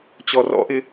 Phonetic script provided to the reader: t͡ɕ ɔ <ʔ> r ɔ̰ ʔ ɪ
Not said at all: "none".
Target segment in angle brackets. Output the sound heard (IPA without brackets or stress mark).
none